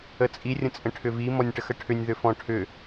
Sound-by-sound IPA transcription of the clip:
ə t͡sʼ i rʲ ə̃ t͡sʼ ə̃ ʈʰ ʏ v i m ɔ nʲ ʈ ə x ə ʈʰ ʏ nʲ ð ʏ f ɔ̃ ʈʰ ʏ

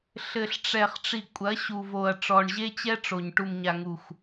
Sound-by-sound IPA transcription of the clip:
ɬ ɘ˨ ɬ ʈ͡ʂ ɛ˨ χ ʈ͡ʂ i˨ kʷʼ ɐ˨˦ ɕ u˨ v o˨ ɐ̯ ʈ͡ʂ ɔ˨ ɳ ʑ e˦ t͡ɕ ɛ˦ ʈ͡ʂ o˨ ɲ ʈ u˨ m ɲ a˨ ŋ u˨ xʷ

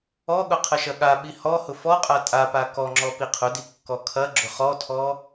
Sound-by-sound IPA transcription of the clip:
ɔ ɠ ʊ qʰ ɐ ʃ ɐ ɠ a ɓ i h ɔ h ʊ f ɔ qʼ a tʼ a p a k ɔ ŋ͡ǁ ɔ p i qʰ ʊ d i kː ɔ kʰ ɐ ɡ͡ǁ ʊ χ ɔ tʰ ɔ

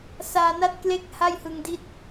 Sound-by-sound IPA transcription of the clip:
s aː˧ n a˥˩ t̚ k l e˥˩ k̚ h a˥˩ j h ɯ˧ ŋ d i˦˥ t̚

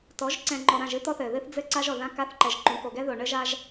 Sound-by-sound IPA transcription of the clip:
t ɔ˨˦ ʒ ǀ ɛ̃˨ ŋ͡ǃ ɔ˨ ɾ ã˦˨ ʒ ɨ˦ t̪ ɔ˦ θ ɘ˨ ð ɨ˦ θ d͡z ɘ˦ ǀ a˦ ʒ ɔ˨ ð ã˦ k a˦ θ ǃ ɛ˨ ʒ ǃ ũ˨˦ k o˨ ɡ ɛ˦ ð o˨ ɳ ɘ˦ ʒ a˦ ʒ

